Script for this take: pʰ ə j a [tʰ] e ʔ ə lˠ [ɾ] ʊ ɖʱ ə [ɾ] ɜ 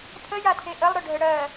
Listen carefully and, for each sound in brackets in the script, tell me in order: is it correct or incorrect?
correct, correct, incorrect: ɽ

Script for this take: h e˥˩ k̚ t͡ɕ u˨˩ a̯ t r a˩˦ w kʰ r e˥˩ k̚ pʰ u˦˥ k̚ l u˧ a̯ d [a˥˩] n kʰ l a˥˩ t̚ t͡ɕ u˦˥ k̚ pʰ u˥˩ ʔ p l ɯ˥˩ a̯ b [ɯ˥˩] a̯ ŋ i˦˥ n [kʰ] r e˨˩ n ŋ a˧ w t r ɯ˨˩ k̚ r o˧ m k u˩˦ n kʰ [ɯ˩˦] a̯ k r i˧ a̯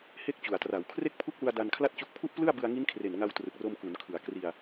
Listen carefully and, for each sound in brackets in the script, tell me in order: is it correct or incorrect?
incorrect: a˧, incorrect: ɯ˧, correct, correct

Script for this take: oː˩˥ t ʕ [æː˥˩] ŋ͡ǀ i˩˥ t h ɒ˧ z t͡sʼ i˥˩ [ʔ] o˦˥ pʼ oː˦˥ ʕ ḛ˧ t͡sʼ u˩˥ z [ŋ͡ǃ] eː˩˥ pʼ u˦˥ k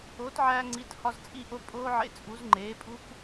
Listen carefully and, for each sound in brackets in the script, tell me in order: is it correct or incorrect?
incorrect: æː˧, correct, correct

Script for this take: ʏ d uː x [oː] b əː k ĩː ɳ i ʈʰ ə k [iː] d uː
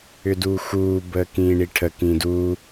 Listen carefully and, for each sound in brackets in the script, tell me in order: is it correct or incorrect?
incorrect: uː, incorrect: ĩː

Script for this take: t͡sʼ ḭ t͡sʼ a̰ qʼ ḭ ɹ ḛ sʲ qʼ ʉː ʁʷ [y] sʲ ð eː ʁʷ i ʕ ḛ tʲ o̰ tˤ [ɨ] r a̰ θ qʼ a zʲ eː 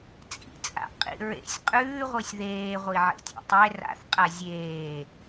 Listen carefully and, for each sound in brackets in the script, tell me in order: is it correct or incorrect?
incorrect: ɨ, incorrect: e

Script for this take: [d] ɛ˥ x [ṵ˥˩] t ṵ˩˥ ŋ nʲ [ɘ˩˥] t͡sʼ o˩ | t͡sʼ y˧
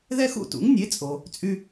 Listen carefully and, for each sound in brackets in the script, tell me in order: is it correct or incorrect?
incorrect: ð, correct, incorrect: e˩˥

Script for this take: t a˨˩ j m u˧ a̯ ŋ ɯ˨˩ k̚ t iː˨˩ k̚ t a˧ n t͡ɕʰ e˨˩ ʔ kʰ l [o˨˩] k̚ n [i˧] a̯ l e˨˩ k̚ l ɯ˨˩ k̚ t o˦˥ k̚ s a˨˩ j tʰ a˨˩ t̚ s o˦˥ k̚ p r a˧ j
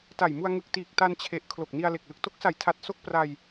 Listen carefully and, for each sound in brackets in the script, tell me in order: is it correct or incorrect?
correct, correct

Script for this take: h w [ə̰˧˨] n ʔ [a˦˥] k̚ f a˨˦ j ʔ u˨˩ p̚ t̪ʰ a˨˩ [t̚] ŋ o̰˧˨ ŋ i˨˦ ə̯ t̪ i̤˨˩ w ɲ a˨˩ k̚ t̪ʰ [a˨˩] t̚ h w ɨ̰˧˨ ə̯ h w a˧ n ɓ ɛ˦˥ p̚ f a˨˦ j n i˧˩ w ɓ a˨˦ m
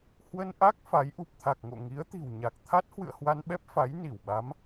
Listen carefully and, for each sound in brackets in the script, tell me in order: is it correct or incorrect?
incorrect: ə˧, correct, incorrect: k̚, incorrect: a˦˥

